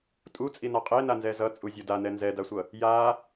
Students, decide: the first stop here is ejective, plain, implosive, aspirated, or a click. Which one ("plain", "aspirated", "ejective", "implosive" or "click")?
ejective